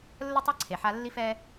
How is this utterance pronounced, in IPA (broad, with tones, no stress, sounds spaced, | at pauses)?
lː ə˦ tˤ a˦ ǀʰ e˨ ħ a˦ lː i˦ f ɛ˦